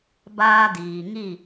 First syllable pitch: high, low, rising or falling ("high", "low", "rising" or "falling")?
high